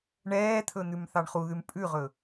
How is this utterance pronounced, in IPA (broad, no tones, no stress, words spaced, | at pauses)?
ɳɛːt̪ʰɵ n̪ʉmθɑɳχuðʉm pʼʉʁɵ